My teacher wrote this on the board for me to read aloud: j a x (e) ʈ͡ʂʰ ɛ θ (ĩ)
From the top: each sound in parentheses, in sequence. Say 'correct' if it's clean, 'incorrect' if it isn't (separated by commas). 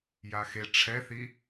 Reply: correct, incorrect